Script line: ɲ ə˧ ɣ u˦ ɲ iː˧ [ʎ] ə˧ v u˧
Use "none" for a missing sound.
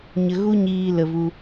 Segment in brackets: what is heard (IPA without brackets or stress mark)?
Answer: l